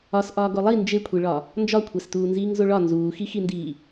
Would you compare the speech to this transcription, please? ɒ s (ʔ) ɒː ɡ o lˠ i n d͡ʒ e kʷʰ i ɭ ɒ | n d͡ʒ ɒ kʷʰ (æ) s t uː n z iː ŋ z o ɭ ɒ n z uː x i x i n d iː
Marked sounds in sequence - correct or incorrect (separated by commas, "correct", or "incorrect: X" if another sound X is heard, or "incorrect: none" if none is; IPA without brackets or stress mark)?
correct, correct